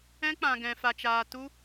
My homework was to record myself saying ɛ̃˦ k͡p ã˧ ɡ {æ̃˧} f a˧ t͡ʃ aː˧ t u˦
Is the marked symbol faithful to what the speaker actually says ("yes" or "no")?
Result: no